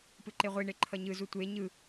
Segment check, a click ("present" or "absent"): present